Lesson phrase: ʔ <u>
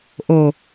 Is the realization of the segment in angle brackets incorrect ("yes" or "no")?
yes